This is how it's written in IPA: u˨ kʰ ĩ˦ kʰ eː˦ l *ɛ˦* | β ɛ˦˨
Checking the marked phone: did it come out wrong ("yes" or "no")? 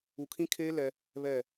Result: no